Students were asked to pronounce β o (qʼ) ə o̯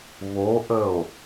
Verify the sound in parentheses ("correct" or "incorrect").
incorrect